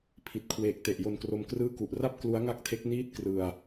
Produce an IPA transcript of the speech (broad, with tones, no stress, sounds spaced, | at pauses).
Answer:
pʰ i˨˩ t̚ kʰ w eː˨˩ k̚ t e˨˩ ʔ j o˧ n k r o˧ m k r ɯː˥˩ k u˨˩ ʔ r a˥˩ p̚ k l u˦˥ a̯ ŋ a˥˩ k̚ tʰ e˦˥ k̚ n iː˥˩ t̚ k r ɯ˧ a̯